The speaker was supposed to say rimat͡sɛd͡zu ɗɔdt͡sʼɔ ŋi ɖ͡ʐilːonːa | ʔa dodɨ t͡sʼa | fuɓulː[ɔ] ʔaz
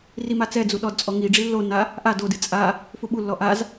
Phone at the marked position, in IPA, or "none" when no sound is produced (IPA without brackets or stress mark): ɔ